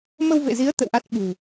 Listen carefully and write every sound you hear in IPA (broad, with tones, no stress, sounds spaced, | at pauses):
m ə˧ w v ḛ˧˨ z i˨˦ ə̯ t̪ ə̰˧˨ w ʔ a˦˥ t̚ ɓ ṳ˨˩